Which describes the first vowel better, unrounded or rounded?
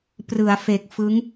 unrounded